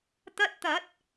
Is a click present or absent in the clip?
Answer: absent